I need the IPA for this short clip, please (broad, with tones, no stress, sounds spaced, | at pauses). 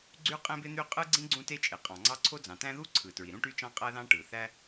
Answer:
ɡ͡ǀ y˥ qʼ ẽ˥ b e˥ n̪ y˥ qʼ ɯ˥ ɡ͡ǀ ĩ˥ ɡ͡ǀ ũ˥ t e˥ t͡ʃʼ e˩ qʼ ɑ̃˩ ŋ͡ǀ ɑ˥ ǀʰ o˥ d͡z ɑ̃˩ t æ̃˥ ð u˥ ǀʰ ɯ˩ t ɹ i˩ ɾ ũ˥ ʈ y˥ t͡ʃ ɑ̃˥ qʼ æ˥ ð ɑ̃˥ ʈ ɯ˩ θ æ˥